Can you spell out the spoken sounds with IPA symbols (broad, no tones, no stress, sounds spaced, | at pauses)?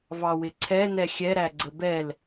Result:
v ɑ w ɪ ǀʰ ɛ n ɛ xʲ ɛ ɾ æ ɡ͡ǀ ə b ɛ l